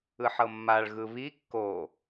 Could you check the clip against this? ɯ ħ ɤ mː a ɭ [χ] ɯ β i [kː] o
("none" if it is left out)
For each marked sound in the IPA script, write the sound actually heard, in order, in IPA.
ɣ, kː

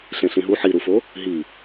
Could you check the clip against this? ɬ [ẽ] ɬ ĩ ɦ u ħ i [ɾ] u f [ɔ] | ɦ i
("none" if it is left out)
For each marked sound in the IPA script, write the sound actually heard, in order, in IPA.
ẽ, ɾ, o

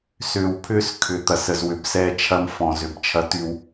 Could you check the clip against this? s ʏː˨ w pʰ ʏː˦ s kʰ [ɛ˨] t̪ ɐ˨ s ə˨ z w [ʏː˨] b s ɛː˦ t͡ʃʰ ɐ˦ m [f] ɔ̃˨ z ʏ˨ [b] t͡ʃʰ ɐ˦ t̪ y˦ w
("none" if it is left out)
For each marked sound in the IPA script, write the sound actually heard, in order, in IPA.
ʏ˨, ʏ˨, f, b

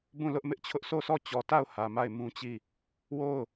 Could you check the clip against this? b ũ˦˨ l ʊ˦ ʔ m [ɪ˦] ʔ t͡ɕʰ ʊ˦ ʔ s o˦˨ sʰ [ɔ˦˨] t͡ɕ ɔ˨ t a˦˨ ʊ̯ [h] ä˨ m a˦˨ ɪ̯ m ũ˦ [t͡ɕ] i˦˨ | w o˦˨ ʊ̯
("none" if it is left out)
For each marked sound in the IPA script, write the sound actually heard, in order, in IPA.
ɪ˦, ɔ˦˨, h, t͡ɕ

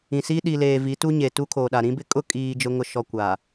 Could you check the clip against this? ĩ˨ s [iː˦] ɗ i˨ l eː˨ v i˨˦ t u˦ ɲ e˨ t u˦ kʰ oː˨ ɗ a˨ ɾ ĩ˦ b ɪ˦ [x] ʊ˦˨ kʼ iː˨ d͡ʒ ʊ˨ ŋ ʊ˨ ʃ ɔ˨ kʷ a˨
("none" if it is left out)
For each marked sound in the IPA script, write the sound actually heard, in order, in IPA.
iː˦, kʼ

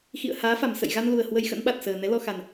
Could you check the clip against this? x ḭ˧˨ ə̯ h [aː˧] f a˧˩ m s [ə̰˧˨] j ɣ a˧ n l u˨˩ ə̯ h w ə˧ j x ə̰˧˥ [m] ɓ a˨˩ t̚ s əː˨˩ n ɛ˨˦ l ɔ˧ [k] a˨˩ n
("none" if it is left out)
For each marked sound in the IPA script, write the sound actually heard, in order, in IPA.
aː˨˦, ə̰˧˨, n, x

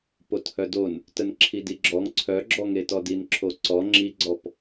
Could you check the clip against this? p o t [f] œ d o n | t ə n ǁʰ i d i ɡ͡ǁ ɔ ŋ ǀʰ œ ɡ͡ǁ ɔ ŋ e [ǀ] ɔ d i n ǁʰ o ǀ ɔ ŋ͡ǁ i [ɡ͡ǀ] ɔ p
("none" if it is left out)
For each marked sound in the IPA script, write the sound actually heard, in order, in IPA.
h, t, ɡ͡ǀ

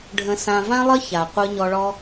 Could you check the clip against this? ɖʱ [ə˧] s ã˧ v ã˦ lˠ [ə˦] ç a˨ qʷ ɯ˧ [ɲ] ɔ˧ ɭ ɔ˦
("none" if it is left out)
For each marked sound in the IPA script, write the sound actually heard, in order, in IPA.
ə̃˧, ə˦, ɲ

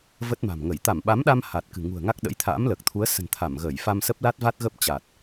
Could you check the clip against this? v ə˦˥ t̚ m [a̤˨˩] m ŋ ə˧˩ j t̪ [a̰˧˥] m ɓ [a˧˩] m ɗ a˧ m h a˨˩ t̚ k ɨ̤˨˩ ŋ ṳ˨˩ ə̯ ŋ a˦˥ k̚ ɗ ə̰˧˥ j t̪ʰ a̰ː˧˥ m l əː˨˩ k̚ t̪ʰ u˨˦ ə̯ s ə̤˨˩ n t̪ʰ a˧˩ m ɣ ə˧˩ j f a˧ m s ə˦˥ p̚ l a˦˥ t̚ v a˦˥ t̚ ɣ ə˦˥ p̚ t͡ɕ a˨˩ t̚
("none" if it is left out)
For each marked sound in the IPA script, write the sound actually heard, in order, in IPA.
a̤˨˩, a˧˩, a˨˦

